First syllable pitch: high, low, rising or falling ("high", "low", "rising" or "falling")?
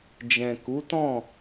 low